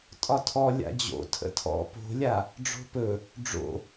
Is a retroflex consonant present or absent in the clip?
present